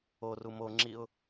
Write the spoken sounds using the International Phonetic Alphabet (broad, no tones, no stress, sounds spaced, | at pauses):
o r u m o ŋ͡ǁ i ʊ̯